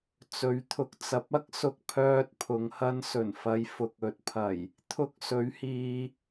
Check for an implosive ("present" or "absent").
absent